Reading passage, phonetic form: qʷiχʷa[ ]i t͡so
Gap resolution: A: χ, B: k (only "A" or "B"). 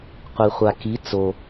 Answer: B